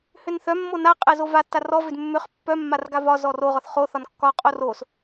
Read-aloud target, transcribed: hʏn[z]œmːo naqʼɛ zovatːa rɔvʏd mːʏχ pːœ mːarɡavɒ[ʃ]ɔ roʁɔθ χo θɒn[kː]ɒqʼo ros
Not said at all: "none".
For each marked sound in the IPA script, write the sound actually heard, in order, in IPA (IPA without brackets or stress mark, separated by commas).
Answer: θ, z, kː